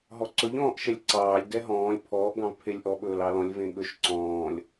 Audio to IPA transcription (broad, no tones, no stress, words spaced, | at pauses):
ɦɔǀɵʎ ɔ̃ːʔʃɛlʲǀɑːlʲ dɛɦɔ̃ːlʲ pʰɔːʔ ɡɑ̃vpʰelʲʔɔ ɓɵːlɑlɔ̃lʲ vẽɠɵʃ ǀɔ̃ːlʲ